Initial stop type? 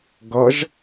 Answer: plain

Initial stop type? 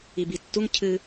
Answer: plain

